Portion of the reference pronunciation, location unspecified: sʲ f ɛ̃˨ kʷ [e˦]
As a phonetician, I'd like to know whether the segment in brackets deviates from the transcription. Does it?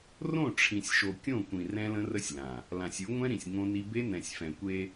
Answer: no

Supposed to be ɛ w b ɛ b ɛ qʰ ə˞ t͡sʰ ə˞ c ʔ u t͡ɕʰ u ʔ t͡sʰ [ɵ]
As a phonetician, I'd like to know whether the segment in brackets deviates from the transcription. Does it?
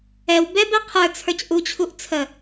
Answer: yes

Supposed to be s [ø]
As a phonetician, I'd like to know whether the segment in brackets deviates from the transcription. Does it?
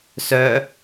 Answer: yes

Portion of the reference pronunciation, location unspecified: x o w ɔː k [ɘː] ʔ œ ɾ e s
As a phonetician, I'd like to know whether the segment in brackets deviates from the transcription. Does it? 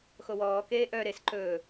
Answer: yes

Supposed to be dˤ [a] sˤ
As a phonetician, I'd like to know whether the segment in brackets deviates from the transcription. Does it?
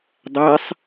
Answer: yes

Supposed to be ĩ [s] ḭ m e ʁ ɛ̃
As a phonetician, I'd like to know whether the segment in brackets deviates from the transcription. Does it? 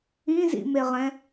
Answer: yes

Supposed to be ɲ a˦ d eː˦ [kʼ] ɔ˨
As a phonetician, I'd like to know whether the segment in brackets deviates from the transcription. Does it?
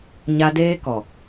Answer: yes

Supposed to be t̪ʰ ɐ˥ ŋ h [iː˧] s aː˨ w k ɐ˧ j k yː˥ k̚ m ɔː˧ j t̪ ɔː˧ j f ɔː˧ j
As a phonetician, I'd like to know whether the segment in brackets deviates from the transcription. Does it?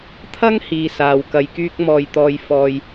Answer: no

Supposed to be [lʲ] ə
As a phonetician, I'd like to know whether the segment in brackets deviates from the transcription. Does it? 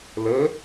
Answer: yes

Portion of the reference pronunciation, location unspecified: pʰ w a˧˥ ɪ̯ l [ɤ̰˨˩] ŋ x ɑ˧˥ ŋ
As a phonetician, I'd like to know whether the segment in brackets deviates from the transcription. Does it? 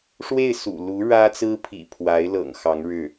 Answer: no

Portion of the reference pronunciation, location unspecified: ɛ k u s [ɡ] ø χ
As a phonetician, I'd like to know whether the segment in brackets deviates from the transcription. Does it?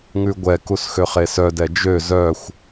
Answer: yes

